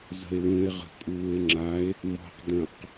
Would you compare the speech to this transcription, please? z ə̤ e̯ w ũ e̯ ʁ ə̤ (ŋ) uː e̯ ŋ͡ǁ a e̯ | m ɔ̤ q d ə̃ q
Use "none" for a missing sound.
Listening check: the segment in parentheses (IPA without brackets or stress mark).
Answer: kʼ